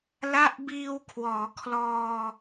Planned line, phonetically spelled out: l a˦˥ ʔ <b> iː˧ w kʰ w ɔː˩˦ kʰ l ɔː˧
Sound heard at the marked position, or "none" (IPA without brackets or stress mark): b